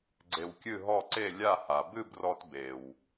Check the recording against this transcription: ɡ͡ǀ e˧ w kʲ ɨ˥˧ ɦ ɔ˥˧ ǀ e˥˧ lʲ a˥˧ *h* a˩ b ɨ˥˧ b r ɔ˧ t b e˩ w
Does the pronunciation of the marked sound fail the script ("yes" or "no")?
no